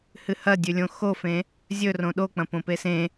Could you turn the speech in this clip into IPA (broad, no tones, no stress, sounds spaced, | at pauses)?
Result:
h ɨ h ɐ dʲ ʉ lʲ õ x o f ẽ | zʲ ɵ r õ ɗ o k͡p ɐ̃ p õ p e s ẽ